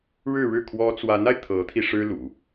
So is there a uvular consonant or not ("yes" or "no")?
no